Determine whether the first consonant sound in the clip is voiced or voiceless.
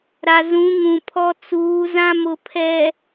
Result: voiced